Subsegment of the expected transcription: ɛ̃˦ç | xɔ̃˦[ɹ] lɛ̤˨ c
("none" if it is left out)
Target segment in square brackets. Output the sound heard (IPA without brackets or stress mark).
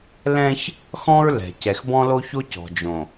ɹ